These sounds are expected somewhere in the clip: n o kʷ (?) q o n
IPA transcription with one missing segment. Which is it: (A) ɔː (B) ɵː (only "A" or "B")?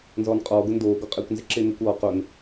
A